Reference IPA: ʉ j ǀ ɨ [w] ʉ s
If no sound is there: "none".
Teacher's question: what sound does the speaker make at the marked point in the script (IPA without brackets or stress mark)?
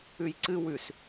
w